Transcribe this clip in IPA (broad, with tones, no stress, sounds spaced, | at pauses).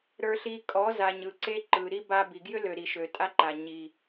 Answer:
ɾ ə˞˧ ɬ i˧ kʼ ɔ˨˦ z a˨ ɲ ɯ˨ ǀ e˦ ǃ ɯ˨ ɾ i˦ b a˧ b i˨ ɡ j ʏ˦ l ø˨ ɾ i˨ ʃ ø˨ tʼ a˦ ǃ a˨ ɲ i˨